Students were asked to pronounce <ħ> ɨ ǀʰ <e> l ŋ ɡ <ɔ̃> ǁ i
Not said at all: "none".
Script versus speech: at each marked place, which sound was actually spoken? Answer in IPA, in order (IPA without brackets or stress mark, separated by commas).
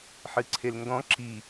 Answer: ħ, e, ɔ̃